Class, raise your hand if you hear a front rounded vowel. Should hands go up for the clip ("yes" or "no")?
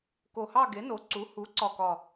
no